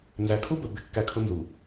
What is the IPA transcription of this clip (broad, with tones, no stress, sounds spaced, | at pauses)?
n z æ˨ kʰ u˦ b ə˨ b ɪ˦˨ kː æ˦ kʰ ʊ˦ n z u˨